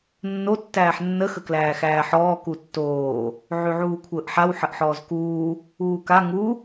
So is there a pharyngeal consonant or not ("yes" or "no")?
yes